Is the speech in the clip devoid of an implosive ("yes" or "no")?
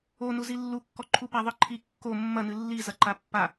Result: yes